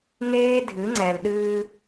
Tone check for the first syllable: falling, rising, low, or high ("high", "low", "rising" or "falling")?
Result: high